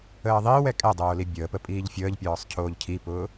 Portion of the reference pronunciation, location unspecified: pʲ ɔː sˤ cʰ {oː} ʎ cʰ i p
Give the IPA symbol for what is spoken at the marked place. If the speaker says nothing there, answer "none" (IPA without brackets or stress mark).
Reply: oː